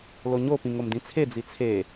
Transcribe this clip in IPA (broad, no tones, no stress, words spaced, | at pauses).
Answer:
loɲopĩ ŋomdĩt͡sʰed͡zi t͡sʰe